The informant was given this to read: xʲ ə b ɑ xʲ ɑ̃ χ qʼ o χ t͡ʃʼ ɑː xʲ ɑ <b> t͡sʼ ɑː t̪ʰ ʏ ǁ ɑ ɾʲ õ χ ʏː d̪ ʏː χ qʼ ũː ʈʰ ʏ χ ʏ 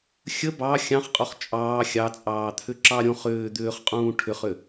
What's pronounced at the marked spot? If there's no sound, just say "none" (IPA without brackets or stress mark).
none